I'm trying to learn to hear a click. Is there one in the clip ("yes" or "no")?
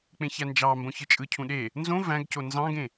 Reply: no